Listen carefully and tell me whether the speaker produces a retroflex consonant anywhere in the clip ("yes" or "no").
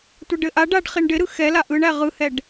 yes